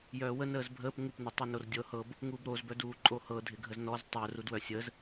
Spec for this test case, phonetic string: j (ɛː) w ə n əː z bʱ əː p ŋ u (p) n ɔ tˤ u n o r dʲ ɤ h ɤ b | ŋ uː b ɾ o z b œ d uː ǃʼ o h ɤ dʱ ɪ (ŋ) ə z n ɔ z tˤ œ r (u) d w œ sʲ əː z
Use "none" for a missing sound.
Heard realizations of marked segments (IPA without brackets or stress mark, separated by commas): œː, p, ɡʱ, u